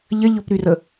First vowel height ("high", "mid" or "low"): low